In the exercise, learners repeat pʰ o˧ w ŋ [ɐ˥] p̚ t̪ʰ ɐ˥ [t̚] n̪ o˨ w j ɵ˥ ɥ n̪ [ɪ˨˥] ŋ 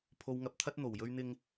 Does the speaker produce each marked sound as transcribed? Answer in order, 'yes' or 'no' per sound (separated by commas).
no, yes, no